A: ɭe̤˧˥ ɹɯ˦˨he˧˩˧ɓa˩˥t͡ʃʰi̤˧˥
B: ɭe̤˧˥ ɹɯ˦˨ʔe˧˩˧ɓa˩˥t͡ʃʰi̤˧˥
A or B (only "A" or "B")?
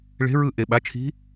B